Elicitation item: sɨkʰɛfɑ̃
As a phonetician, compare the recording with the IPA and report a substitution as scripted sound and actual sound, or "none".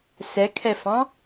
ɨ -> ɛ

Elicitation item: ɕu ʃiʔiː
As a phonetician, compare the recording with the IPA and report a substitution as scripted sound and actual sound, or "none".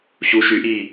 i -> y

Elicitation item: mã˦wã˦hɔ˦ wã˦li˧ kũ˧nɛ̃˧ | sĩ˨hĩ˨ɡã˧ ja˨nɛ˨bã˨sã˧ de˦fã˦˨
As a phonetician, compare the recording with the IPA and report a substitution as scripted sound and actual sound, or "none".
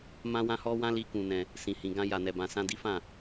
e˦ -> i˦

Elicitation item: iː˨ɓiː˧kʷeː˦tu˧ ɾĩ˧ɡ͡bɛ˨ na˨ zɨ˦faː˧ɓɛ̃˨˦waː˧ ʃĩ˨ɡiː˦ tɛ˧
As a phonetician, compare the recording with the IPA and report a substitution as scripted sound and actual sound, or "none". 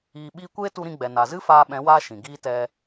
none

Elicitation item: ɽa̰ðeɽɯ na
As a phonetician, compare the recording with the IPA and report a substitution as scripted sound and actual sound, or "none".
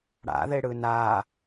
none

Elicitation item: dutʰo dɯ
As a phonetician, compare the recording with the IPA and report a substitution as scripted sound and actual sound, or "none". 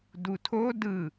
none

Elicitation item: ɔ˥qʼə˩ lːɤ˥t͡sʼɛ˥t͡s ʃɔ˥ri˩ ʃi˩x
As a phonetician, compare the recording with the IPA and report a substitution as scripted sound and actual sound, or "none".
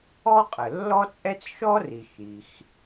ɤ˥ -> ɔ˥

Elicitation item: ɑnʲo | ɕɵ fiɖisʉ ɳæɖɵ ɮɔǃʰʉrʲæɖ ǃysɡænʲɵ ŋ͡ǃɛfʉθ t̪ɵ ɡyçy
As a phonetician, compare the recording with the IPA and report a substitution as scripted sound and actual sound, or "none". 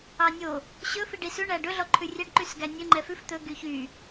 θ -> f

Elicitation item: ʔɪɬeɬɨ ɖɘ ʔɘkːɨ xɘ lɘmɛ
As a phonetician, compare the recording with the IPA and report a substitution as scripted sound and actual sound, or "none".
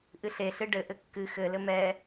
ɪ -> ɨ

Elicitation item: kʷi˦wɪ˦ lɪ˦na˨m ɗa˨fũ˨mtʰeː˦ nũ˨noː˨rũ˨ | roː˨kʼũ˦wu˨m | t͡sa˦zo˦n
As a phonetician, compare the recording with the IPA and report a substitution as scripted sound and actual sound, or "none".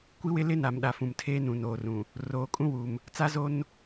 none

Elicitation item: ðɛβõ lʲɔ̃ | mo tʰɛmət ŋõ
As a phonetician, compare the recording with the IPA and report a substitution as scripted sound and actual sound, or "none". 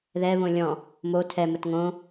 none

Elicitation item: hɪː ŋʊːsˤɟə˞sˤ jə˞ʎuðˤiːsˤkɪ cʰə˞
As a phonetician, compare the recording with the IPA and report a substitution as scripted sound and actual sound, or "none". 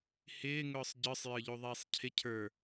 k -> cʰ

